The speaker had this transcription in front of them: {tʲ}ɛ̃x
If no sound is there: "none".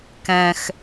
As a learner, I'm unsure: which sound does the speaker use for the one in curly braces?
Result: k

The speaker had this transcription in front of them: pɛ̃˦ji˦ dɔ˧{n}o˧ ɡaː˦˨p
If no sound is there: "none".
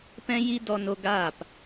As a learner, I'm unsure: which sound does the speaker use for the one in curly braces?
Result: n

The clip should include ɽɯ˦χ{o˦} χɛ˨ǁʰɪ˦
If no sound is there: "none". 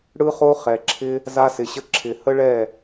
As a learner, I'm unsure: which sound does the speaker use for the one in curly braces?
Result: o˦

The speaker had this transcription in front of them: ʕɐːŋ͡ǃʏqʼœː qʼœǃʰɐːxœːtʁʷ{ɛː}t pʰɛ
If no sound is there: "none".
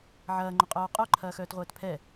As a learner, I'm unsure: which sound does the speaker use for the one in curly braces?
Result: ɛː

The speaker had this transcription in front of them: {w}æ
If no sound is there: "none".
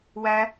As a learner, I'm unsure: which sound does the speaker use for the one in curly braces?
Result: w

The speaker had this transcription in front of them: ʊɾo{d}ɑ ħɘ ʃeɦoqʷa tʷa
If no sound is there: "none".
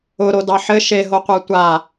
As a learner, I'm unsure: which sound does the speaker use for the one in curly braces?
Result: d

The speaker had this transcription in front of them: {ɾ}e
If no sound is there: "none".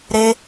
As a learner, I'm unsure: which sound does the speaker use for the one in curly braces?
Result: ɾ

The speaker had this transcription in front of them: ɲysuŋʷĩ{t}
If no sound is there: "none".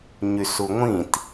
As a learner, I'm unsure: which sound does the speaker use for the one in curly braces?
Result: t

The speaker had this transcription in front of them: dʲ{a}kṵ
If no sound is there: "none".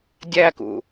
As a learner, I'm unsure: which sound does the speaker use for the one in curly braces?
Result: æ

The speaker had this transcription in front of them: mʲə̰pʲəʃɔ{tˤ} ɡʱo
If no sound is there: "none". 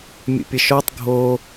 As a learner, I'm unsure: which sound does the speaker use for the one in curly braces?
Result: tˤ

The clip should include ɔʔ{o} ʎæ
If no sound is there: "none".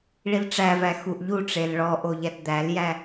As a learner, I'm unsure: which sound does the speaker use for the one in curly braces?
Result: o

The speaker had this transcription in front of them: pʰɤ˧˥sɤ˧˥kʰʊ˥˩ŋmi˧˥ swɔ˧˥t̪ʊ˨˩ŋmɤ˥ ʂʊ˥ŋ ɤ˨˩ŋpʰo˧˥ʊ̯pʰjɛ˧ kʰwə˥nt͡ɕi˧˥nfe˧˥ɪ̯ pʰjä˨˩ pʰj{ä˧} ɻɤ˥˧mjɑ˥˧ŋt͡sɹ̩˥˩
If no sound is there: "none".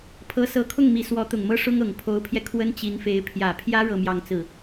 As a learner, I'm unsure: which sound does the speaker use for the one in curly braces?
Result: ä˥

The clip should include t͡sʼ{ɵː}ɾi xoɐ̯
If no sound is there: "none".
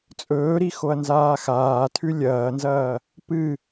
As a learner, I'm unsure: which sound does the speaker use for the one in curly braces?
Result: ɵː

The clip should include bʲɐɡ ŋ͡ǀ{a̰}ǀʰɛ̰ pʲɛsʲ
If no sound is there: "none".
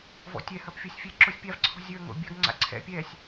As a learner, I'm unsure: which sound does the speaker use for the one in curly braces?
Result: a̰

